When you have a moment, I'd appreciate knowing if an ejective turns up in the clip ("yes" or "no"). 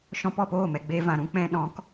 no